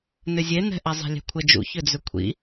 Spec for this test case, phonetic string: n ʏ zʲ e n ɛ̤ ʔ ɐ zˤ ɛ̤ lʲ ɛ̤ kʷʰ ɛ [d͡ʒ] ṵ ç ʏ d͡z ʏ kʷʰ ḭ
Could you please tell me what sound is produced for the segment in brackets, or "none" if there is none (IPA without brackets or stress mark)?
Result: d͡ʒ